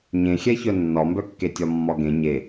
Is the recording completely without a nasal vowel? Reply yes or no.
no